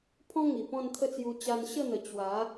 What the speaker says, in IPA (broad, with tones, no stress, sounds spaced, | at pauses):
pʰ ɔ̃˦ ŋ i˨˩ p ɔ̃˥˧ n t̪ʰ ə˥˧ t͡s j u˧ t͡ɕ a˧ n ɕ ə˥˧ n̪ ə˨˩ t͡ɕ w a˨˦